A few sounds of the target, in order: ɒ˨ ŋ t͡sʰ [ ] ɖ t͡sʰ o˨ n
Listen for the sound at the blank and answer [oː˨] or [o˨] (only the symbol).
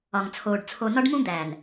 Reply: oː˨